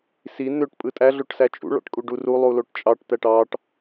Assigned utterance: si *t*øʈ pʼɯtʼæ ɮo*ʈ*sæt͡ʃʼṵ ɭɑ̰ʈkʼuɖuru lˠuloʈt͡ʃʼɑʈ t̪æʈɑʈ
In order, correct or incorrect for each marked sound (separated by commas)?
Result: incorrect, correct